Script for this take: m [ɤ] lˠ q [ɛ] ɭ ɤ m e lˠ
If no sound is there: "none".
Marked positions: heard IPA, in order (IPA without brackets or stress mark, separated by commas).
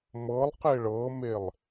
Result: ɤ, e